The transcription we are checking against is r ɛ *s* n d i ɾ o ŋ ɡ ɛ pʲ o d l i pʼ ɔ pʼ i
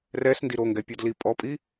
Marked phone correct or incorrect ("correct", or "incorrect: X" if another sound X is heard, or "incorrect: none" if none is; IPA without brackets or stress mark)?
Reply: correct